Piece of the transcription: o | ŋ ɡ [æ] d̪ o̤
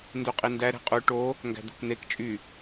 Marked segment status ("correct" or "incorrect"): incorrect